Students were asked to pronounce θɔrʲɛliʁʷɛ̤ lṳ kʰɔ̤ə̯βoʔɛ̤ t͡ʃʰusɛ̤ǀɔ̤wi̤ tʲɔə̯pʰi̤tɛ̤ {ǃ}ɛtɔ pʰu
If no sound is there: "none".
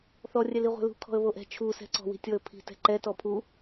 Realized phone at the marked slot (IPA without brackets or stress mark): ǃ